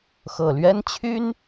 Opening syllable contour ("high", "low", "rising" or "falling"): low